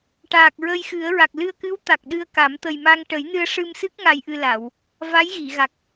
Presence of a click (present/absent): absent